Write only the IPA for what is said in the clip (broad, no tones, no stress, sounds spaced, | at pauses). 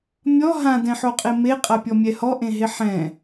mʲ ɔ ɦ ã d ɛ̃ ħ o qʼ e m e qʼ a pʲ ɔ mʲ ɛ h ɔ ʔ ẽ ɦ e ħ ɛ̃